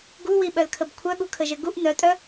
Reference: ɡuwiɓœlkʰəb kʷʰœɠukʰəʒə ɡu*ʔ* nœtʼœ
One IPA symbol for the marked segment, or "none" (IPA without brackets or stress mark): ʔ